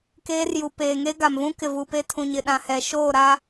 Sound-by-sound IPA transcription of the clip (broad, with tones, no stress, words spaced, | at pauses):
keː˦rju˨ peː˨ŋe˦ɡa˨mvũ˦ kɪ˨vu˨pe˦ tʰũ˨ɲɪ˨ɗã˨hɛ˨ ʃoː˦˨ɾa˦